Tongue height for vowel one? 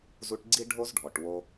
high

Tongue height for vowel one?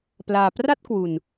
low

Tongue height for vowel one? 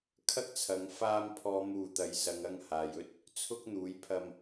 low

